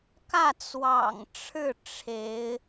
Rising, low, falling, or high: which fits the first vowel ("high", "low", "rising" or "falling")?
falling